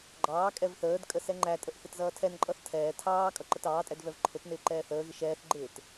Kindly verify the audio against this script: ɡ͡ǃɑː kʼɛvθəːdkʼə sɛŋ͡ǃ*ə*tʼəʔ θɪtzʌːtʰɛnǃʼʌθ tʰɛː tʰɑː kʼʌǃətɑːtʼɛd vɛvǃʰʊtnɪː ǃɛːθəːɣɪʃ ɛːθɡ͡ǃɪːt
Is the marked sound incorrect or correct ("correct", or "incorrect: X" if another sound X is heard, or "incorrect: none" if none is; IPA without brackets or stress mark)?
incorrect: æ